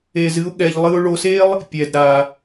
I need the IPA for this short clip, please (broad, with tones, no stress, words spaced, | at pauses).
e˧zɨ˥ʊ̯ɠɛ˧ʎ lˠɨ˧ʊ̯ɭo˧se˥lˠ | pʲɛ˩d ɾa˩